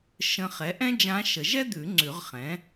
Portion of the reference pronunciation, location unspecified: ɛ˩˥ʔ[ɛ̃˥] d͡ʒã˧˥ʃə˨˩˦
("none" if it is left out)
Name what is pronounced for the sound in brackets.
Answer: ɛ̃˥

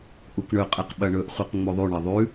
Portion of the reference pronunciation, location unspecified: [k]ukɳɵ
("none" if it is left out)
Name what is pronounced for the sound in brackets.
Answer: ʔ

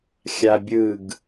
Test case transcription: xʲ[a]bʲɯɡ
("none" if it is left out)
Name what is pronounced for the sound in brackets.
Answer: a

